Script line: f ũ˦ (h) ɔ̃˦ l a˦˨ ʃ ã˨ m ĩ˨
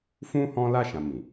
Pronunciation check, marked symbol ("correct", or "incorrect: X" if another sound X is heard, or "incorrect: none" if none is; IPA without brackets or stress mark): correct